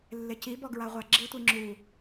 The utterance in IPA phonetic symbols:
lː ɪ c i b ɔ ɡ ɹ a ʁʷ a ɡ͡ǁ i tʷ i ŋ͡ǁ u

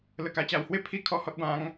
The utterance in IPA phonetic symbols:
l ə˧ k a˧ t͡ɕ a˧ w h w e˥˧ pʰ i˦ kʰ ɔ˥˧ h ɔ˦ t̚ b ã˦ ŋ

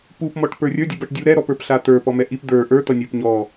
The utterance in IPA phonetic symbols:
p u p m ɔ ʈ p ə˞ rʲ ə˞ dʲ u b ʌ ʈ dʲ u ɾ ɛ ɾ ɔ p ə˞ p ɬ a t̪ ə˞ p ɔ m ɛ ʔ i p d̪ ə˞ ʔ ə˞ t̪ ʌ nʲ ə˞ p ɲ ɔ

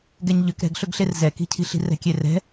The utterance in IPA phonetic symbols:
ɡ ɛ ɲ ʎ ʏ k ɾ ɛ̤ ɡ ɬ ɵ ɡ ɬ e r z ɛ k i̤ cʰ i̤ ɬ i̤ r ɛ̤ kʲ e r ɛ̤

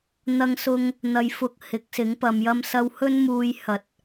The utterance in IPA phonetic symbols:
n̪ ɐ˧ ŋ s ʊ˧ ŋ | n̪ ɐ˧ j f ʊ˧ k̚ h ɪ˨˥ k̚ s ɪ˨˥ ŋ p ɐ˨ m j ɐ˧ m s ɐ˧ w h ɵ˥ n m uː˧ j h ɐ˨ t̚

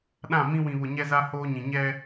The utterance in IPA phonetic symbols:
ɗ ã˦˨ m ĩ˦ w ĩ˨ β ʊ˨ ɲ ɛ˦ z a˦ h oː˦ ɲ ĩ˨ ɲ ɛ˦

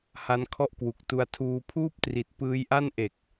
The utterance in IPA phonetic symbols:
h a˦˥ n kʰ ɔ˥˩ ʔ k w u˨˩ k̚ t u˧ a̯ tʰ uː˧ pʰ uː˥˩ p̚ t r i˨˩ t̚ p ɯː˦˥ j ʔ a˥˩ n ʔ e˨˩ k̚

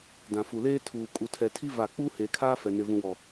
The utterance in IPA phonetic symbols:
d ã˨ f u˨ l eː˦ tʰ uː˨ kʼ u˨ tʰ ɛ˨ tʰ i˦ v a˦˨ k͡p uː˦ h eː˨ kʰ aː˦ f ɛ˨ n ɪ˨ v ũ˨ w ɔ˨

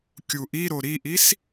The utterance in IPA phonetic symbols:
kʲ u ʔ i ɾ o ɾ i ʔ i s

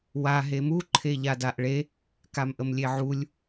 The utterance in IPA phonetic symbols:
w a ɦ e m u ǃʰ e ʎ a d a ʔ ɭ e | k a m ʔ ə m lʲ e ʕ u lʲ

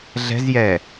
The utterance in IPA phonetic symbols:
ɮ ɛ̤ z j ɛ

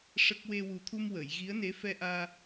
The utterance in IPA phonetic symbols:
ʂ ə˦˥ k̚ w e˧ w u˨˩ t̪ʰ u˧ m w ə˨˩˨ j ɣ i˧˥ ə̯ n e˧˥ f ɛ˧ ʔ aː˧

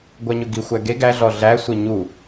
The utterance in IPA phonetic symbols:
ɡʷ æ ɲ ɵ ɡ i xʷ æ ɡ e ɡ æ ɮ ɔ ɮ æ sʷ e ɲ u

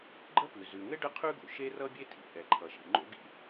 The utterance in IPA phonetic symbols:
ɡ͡ǃ ə˥ p ʉ˩ z ʉ˩ ŋ ɘ˥ ɖ ə˥ qʰ ʉ˥ ɡ o̰˩ ʃ e˥ r ʌ˥ bʲ e˥ tʰ ḭ˩ ʔ ɛ˩ ǃʰ ʌ˩ ʃ ḭ˩ ŋ͡ǃ o̰˥ ɡ ḭ˥

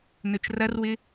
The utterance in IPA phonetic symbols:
n ɵ t͡ʃ r ɐ r w ɪ

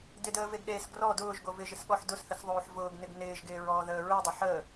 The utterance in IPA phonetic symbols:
d ɪ d əː v e ɡ ɗ eː s ɡ r ɔ d ʊː ʒ ɡ o v ɪ ʒ ɪ s ɠ ɔ ħ d ʊ s θ ə s ðˤ oː ħ v ʊː ɡ n ɪ ɡ n ɪː ʒ ɡ ɪː ɹ ɔː ð əː ɹ ɪ dˤ ʊ ħ əː

